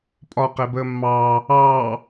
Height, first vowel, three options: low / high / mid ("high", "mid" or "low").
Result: low